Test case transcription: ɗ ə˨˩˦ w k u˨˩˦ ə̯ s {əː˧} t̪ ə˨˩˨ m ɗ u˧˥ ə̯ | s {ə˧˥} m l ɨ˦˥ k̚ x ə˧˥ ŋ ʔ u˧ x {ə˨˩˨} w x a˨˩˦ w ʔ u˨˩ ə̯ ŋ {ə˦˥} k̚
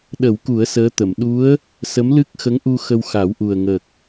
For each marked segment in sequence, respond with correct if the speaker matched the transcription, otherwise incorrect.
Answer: incorrect: əː˧˥, correct, incorrect: ə˧, incorrect: ə˨˩

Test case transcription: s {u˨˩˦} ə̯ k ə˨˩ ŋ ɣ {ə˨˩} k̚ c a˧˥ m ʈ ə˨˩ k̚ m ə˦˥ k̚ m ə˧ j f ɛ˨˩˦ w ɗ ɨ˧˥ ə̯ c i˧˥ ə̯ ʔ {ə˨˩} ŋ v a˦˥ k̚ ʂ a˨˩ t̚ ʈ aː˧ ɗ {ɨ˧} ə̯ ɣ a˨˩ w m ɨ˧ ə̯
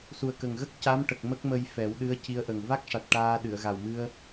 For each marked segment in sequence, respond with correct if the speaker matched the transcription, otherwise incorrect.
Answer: incorrect: u˨˩, incorrect: ə˦˥, correct, incorrect: ɨ˨˩˨

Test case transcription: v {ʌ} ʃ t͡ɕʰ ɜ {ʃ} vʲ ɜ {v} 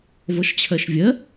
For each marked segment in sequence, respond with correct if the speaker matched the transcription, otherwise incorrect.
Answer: correct, correct, incorrect: none

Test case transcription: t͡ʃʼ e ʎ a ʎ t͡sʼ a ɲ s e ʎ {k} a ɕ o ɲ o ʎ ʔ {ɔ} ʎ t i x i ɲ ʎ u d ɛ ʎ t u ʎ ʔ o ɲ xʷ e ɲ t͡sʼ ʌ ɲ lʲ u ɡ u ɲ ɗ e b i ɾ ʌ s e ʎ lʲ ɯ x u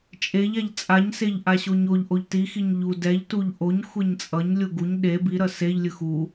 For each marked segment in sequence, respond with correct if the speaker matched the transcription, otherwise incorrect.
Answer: incorrect: ʔ, incorrect: o

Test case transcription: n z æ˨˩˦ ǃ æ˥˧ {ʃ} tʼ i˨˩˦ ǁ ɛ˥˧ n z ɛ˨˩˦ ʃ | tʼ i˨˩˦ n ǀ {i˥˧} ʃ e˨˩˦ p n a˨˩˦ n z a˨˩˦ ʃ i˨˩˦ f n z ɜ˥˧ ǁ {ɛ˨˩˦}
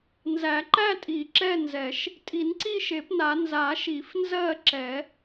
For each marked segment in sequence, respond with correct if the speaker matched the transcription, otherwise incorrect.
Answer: incorrect: none, correct, correct

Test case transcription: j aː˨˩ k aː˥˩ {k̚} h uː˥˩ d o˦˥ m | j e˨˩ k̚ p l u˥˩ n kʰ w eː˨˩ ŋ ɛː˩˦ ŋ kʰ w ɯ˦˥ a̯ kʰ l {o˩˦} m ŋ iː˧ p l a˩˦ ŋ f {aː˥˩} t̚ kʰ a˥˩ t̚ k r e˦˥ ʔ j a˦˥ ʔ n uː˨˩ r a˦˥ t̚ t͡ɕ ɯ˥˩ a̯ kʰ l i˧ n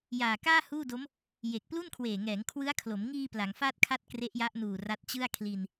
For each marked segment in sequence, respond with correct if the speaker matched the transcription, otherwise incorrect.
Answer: incorrect: none, correct, correct

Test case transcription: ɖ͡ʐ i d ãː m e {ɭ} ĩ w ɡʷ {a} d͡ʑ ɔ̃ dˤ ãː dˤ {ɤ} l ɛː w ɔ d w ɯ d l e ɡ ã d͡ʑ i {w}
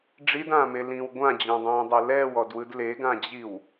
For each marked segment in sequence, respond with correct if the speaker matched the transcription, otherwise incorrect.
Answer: incorrect: l, incorrect: ã, correct, correct

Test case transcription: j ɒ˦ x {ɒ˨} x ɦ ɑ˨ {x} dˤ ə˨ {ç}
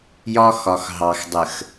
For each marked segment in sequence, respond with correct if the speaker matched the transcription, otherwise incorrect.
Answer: correct, correct, incorrect: x

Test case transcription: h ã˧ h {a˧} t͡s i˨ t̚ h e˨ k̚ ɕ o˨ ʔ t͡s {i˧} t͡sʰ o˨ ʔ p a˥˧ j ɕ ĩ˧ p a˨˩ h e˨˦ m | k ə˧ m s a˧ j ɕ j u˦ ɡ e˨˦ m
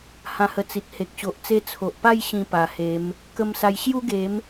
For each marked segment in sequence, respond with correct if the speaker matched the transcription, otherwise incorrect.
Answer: incorrect: ə˧, incorrect: e˧

